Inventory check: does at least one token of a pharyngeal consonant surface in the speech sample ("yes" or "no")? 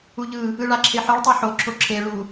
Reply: yes